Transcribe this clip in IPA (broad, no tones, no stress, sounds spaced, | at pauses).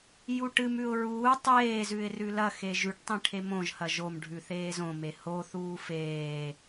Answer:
j u ʈ ɨ m ʉ ʊ̯ ɹ uː tˤ eː z ʉ ɪ̯ r ʉ l ɐ x e ʒ ʉ ʈ tˤ ĩ ʈʰ e m õ ʒ h ɐ ʒ o m ɖʱ ʉ θ eː z õ m e h o θ uː f eː